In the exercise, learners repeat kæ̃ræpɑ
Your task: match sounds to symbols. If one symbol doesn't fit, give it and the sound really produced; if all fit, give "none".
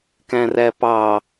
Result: none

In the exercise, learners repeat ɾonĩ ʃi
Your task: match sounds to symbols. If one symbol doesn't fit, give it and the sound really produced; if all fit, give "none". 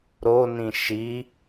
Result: none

